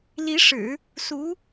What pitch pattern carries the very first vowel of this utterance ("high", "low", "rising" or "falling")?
rising